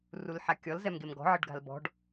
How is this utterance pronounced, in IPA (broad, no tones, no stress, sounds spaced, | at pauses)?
r u l ħ a kʲ ɔ l z ɛ m ɡ e m ɡ ɔ̤ ʕ ə ɖ ɡ a̤ l b ɔ̤ ɖ